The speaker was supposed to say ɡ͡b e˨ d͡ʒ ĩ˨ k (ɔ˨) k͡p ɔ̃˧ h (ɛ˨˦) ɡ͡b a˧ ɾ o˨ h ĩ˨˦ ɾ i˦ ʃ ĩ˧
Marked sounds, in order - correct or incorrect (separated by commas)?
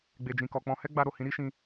correct, incorrect